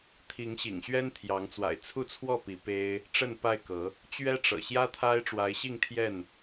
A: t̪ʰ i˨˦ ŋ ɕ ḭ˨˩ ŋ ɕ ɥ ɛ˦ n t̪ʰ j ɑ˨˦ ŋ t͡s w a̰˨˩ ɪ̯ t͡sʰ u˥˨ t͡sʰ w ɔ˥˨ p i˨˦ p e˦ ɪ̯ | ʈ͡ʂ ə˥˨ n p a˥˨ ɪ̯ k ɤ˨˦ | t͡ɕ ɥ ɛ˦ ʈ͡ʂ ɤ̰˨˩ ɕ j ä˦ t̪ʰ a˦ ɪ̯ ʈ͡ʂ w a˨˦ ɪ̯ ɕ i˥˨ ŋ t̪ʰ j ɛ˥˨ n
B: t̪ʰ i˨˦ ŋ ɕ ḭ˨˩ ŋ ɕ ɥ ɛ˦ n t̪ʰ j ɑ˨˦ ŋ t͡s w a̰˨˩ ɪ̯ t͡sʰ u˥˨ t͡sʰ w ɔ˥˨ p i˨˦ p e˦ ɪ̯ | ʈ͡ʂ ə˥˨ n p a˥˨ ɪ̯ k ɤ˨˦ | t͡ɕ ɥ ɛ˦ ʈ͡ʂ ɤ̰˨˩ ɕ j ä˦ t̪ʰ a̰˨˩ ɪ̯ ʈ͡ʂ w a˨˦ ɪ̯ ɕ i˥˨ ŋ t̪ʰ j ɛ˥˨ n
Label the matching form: A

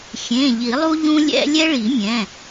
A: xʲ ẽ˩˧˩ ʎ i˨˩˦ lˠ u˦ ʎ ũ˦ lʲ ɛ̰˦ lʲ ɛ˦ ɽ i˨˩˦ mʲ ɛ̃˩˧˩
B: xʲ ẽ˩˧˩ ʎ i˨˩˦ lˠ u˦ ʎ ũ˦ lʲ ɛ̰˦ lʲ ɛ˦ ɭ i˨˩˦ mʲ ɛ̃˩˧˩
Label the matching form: B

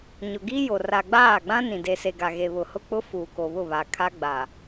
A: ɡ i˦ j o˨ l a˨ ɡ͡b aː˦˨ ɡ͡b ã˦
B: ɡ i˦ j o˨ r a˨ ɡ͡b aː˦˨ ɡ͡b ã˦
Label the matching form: B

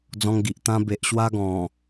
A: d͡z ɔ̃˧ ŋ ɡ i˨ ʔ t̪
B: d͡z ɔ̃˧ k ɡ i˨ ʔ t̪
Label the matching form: A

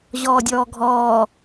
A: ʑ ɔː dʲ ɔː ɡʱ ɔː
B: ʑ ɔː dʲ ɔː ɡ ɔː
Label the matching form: A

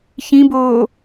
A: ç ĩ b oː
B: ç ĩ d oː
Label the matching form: A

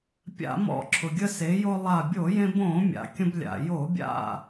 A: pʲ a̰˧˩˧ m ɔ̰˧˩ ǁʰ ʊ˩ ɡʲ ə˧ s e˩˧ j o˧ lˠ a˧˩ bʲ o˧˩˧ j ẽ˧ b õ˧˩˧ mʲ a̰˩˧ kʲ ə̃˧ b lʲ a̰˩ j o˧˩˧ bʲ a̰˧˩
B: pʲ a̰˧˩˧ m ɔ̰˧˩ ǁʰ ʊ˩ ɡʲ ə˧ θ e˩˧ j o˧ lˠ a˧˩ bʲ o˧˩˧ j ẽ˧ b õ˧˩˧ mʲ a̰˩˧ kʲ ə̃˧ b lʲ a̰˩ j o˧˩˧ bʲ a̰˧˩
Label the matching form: A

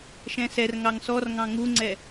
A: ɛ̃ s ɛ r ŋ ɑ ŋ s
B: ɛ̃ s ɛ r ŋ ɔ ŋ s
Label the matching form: A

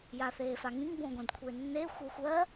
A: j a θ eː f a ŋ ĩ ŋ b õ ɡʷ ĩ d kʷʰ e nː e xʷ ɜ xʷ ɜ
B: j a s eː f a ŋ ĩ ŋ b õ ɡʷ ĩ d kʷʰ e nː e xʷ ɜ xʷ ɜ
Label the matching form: A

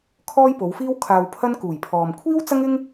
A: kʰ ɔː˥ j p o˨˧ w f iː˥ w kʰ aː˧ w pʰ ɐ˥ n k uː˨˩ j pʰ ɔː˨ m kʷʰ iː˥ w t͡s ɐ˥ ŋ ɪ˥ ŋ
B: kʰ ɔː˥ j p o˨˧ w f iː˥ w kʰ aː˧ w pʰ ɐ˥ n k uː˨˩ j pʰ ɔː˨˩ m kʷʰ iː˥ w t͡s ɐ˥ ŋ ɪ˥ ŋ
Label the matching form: A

